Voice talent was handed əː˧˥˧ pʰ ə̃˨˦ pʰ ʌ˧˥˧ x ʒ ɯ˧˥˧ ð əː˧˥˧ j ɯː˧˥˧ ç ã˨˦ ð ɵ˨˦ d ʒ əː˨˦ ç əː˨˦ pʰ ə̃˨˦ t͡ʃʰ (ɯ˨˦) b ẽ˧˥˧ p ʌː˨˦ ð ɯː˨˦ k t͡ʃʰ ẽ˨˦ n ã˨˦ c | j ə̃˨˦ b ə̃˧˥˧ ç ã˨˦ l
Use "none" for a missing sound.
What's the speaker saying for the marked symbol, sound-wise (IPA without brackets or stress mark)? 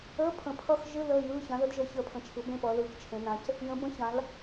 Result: ɯ˨˦